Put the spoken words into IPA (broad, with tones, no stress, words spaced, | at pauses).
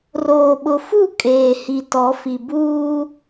roː˨ɓʊ˨fu˦˨ kʼeː˨hi˨ tɔ˨˦fi˨ buː˦